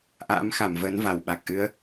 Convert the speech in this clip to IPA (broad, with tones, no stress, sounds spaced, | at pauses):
ʔ a̰ː˧˥ m x a˧˩ m v əː˨˦ n v a˧˩ w ɓ a˨˩ k̚ ʔ ɨ˨˦ ə̯